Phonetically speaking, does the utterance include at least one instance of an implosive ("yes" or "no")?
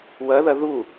no